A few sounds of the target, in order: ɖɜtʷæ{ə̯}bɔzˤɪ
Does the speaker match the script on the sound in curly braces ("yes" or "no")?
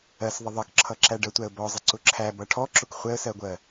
yes